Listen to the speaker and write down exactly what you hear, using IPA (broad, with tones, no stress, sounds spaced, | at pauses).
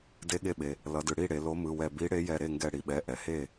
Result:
d e˨˥ ɠ e˧˩ ɓ e˩ | l ʌ˩˧ d ɯ˩ ɽ i˥˩ ɽ e˩˧ l o˨˥ m ɯ˩˧˩ w ɛ˧˩ b i˨˥ ɽ e˨˥ j ɛ˧˩ ɾ e˥˩ ŋ ɡ ɛ˧˩ ɽ i˩ ɓ ɛ˩˧˩ ʔ ɛ˩ h e˥˩